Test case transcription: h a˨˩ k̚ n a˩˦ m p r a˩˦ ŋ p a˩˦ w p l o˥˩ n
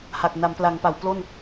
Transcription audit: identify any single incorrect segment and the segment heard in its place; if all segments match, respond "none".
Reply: r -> l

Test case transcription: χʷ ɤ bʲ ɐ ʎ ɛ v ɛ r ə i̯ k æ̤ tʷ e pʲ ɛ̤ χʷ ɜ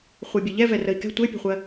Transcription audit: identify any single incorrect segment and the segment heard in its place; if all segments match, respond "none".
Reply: æ̤ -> ɛ̤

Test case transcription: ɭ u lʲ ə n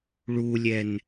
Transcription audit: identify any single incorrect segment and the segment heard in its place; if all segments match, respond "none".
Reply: ə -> ɛ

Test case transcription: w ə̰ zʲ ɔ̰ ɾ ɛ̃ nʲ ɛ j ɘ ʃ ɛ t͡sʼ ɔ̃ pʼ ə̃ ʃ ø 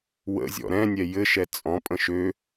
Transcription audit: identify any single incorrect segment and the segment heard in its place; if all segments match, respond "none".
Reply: none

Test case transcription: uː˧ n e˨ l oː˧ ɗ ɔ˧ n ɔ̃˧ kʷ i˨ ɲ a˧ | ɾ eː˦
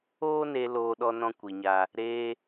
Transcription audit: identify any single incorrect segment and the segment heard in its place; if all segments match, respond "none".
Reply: uː˧ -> oː˧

